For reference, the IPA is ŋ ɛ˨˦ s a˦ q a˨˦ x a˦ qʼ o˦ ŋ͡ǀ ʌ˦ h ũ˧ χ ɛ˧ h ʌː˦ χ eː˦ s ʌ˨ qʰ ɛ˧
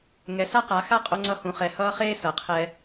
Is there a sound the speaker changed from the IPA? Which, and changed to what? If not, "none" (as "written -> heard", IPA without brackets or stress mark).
none